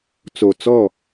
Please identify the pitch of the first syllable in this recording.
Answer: low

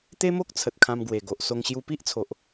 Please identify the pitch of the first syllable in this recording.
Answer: high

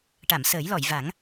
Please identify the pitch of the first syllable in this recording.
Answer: low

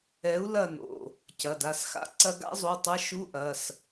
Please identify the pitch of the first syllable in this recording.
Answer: rising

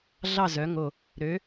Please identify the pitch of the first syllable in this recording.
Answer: falling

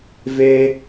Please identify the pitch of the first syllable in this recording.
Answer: high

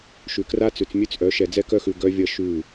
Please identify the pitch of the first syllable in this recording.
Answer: low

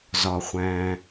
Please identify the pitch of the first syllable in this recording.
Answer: low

